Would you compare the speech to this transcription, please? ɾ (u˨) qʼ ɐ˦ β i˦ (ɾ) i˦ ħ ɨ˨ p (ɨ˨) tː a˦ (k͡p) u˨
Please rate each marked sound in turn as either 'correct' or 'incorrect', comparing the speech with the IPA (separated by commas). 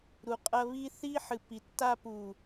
correct, incorrect, incorrect, incorrect